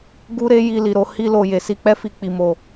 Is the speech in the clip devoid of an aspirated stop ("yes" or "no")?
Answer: yes